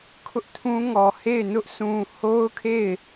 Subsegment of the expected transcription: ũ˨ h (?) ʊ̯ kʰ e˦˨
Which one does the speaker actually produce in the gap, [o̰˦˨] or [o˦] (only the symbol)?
o˦